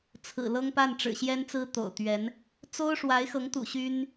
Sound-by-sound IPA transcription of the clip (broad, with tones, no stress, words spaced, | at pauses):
t͡sʰɹ̩˨˩lɤ˥ŋpa˥˩n ʈ͡ʂɻ̩˨˩ɕjɛ˥nt͡sɹ̩˥ t̪o̰˨˩ʊ̯t̪ɥɛ˧˥n | t͡so˥ʊ̯ʂwa˧˥ɪ̯xɤ˧˥ŋt̪ṵ˨˩ ɕy˥n